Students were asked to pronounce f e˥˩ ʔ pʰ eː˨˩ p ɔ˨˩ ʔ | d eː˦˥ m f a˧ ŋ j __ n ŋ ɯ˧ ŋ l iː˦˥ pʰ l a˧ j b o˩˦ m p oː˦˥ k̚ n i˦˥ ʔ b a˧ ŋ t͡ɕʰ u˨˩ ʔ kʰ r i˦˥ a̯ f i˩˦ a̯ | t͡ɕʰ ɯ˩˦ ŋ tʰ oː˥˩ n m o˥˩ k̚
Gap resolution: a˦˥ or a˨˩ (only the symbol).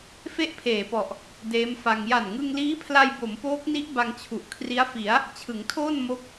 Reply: a˨˩